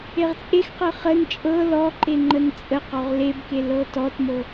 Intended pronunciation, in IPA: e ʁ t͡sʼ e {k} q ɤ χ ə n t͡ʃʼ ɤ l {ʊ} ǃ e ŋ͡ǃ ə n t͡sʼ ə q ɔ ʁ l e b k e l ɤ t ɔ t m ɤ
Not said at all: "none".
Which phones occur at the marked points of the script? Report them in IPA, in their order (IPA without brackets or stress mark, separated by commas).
x, ɔ